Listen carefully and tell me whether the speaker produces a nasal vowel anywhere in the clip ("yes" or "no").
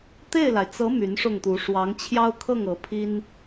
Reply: no